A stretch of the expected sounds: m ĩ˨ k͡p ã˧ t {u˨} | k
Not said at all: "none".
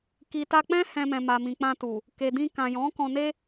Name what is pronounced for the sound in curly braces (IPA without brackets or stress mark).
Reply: u˨